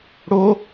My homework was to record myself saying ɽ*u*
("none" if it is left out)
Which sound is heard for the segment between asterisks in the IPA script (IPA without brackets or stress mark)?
o